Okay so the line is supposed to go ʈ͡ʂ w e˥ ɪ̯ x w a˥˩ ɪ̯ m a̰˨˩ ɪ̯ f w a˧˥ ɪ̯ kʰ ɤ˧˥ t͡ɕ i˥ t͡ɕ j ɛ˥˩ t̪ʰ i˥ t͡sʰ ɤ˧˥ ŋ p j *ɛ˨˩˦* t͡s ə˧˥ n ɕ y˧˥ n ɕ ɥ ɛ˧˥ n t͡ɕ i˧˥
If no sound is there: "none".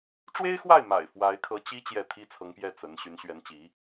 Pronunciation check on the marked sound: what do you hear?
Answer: ɛ˥˩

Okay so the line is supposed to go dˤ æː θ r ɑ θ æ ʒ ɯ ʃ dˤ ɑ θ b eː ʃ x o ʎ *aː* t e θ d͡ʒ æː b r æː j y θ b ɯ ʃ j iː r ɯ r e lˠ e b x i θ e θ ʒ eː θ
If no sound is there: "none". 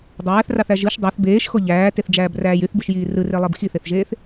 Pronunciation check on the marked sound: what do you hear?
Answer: æː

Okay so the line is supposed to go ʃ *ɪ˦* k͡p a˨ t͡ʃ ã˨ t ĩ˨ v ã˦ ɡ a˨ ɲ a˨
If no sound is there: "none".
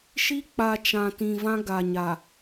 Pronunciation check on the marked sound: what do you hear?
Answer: i˦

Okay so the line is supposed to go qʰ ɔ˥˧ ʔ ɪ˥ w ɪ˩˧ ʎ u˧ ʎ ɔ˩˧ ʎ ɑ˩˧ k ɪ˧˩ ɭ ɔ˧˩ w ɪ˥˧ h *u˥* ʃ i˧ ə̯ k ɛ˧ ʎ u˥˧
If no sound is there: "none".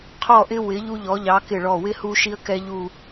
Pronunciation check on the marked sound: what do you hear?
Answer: u˧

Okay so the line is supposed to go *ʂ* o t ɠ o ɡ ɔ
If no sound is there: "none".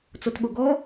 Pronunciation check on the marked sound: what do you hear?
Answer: t͡s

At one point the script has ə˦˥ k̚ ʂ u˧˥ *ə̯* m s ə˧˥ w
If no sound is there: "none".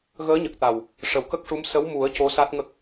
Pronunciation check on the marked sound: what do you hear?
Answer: none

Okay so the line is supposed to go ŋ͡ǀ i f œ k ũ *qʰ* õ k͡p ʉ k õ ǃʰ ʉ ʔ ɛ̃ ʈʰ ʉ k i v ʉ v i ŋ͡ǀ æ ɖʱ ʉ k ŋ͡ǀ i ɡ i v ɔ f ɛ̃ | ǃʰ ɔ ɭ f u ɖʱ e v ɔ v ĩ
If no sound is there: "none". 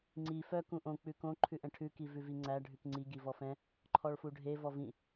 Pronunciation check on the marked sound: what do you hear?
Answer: ʔ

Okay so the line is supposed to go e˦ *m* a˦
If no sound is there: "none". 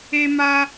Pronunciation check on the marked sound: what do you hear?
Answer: m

